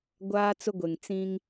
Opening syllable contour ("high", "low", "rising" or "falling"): high